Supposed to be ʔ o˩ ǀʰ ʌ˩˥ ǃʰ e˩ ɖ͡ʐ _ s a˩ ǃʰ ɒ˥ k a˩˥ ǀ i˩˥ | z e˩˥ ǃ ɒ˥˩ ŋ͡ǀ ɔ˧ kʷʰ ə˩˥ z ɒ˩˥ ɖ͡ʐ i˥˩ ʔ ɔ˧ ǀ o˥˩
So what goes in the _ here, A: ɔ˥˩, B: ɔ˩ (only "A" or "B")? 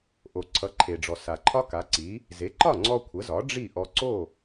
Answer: B